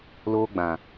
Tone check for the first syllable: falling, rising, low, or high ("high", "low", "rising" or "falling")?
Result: high